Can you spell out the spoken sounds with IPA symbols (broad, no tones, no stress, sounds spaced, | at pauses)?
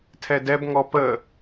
tʰ ɛ d ɛ b ŋ ɔ p ə